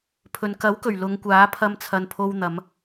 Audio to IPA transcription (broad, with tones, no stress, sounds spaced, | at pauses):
pʰ ɵ˨ n k ɐ˨˥ w k ɵ˨˩ ɥ l ʊ˨˧ ŋ kʷ aː˨˥ pʰ ɐ˧ m t͡sʰ ɐ˨ n pʰ o˧ w n̪ ɐ˨˧ m